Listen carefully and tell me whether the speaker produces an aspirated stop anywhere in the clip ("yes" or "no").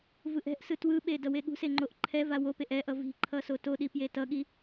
yes